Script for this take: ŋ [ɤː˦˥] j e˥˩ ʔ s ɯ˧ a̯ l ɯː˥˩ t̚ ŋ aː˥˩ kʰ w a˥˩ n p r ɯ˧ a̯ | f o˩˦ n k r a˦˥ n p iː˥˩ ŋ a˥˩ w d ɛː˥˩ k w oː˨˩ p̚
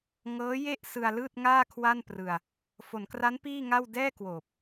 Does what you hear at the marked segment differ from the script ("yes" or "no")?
no